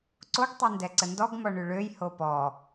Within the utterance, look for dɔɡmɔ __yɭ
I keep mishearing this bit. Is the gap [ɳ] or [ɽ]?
ɳ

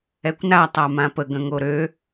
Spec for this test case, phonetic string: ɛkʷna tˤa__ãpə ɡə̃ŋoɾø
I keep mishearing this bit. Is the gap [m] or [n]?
m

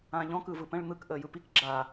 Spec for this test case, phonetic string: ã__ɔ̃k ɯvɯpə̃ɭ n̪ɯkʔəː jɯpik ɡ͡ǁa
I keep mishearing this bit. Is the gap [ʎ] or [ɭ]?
ʎ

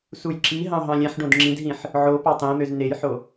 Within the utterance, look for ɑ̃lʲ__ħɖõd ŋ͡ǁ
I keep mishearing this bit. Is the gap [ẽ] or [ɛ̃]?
ɛ̃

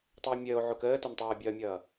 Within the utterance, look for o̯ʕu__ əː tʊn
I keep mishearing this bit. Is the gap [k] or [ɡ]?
k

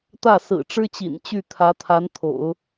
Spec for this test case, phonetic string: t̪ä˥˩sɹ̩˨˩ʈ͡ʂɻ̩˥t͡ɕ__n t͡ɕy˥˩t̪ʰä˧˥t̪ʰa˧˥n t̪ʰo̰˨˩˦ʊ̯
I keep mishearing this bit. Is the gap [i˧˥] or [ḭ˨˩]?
ḭ˨˩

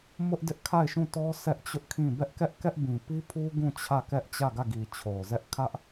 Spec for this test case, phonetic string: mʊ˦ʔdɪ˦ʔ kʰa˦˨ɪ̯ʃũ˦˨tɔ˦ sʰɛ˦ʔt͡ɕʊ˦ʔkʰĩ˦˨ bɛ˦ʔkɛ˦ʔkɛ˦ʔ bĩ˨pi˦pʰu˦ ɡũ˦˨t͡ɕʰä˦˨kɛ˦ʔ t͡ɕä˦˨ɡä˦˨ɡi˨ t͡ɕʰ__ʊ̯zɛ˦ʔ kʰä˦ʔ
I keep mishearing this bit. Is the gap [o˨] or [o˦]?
o˨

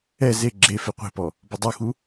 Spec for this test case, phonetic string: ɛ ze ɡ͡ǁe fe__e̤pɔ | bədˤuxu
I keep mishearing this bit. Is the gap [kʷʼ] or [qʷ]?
qʷ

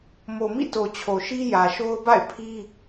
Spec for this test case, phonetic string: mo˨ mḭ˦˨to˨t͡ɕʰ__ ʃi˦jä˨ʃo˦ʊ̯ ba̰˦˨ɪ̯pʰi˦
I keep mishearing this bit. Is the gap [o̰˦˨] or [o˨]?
o˨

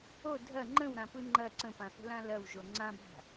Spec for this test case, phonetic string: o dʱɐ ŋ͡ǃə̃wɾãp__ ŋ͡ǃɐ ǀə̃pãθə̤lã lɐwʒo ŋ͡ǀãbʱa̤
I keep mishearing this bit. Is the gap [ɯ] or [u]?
ɯ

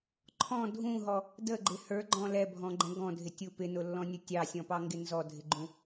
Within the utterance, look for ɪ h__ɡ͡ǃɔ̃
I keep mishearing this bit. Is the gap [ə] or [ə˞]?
ə˞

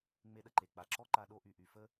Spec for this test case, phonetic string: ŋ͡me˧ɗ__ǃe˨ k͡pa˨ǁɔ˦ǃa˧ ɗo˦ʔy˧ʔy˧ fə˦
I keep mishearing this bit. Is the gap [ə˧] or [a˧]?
ə˧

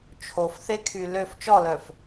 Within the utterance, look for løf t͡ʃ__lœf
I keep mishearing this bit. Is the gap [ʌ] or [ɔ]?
ɔ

